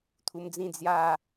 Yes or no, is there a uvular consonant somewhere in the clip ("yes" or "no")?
no